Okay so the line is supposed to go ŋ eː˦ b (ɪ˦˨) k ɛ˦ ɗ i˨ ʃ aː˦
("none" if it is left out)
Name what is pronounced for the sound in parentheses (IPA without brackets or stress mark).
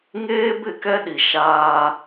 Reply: ɪ˦˨